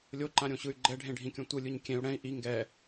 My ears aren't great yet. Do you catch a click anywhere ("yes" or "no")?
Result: yes